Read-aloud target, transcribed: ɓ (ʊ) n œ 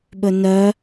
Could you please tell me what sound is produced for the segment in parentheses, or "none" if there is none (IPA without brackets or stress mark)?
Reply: ɵ